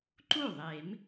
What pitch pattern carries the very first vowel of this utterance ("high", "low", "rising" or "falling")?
falling